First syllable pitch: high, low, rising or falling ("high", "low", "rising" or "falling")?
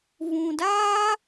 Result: low